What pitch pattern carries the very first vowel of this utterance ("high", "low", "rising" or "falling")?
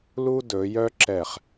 high